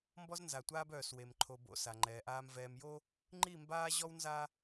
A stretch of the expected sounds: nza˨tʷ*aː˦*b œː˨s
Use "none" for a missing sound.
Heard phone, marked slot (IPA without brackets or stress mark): aː˦